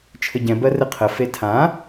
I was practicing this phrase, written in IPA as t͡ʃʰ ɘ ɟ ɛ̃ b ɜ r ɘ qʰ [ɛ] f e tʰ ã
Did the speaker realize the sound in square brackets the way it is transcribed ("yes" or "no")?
no